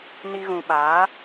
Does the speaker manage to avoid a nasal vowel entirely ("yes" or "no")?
no